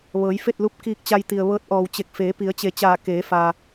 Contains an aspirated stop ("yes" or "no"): no